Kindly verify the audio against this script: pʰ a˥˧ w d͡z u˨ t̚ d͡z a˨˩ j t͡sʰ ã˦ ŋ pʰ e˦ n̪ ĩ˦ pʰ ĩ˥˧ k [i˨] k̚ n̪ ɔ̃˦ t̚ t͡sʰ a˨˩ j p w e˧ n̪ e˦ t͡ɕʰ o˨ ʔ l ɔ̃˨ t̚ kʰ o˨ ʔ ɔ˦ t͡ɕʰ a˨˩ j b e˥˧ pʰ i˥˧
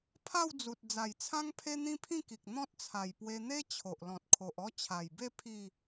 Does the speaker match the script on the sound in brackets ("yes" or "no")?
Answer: yes